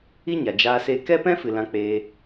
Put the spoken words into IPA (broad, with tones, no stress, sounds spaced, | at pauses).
i˦ ɲ a˨ d͡ʒ aː˧ s e˧ k ɛ˦ p ɛ̃˦ f ɨ˨ l ã˧ k͡p eː˧